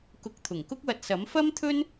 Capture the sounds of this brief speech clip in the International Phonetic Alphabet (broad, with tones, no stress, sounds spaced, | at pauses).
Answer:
k ʊ˨˥ k̚ t̪ʰ ʊ˨˩ ŋ k ʊ˥ k̚ w ɐ˧ t̚ s ɐ˨˥ m f ɐ˥ m t̪ʰ ɵ˥ n